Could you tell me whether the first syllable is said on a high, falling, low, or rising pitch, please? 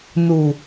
low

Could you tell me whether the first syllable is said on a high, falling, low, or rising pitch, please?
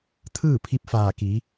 falling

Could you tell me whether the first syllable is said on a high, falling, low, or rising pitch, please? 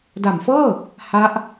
low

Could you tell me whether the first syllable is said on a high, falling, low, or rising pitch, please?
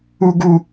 high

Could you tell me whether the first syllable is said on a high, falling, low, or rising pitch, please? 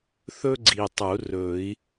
high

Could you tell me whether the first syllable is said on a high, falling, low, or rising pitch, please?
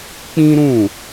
high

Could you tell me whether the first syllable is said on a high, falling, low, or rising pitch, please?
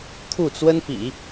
falling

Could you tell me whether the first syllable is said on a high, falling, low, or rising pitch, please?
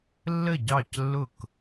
falling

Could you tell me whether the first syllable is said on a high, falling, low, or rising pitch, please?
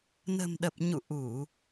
low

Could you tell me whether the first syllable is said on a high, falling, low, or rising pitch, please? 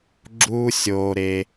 high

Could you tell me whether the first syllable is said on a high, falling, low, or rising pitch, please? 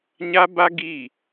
high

